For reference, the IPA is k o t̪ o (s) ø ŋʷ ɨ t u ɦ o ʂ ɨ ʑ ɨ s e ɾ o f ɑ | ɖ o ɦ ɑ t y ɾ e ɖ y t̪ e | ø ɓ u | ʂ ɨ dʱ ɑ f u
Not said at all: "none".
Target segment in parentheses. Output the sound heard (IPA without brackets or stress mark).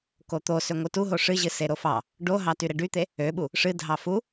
s